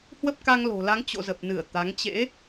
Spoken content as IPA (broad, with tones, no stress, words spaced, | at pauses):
hwə˦˥p̚ka˧ŋlo̤˨˩la˨˦ŋ t͡ɕo̰˧˨zə˨˩p̚ nɨ˧˩ə̯ t̪a˨˦ŋ t͡ɕḛ˧˥